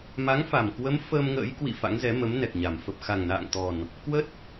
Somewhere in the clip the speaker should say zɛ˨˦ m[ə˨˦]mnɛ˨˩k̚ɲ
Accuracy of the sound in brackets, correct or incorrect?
correct